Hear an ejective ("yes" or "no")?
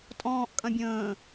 yes